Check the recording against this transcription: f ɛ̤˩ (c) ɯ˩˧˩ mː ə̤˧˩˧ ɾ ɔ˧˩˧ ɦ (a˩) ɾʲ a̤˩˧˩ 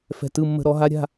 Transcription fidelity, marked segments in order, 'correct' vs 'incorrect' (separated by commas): incorrect, incorrect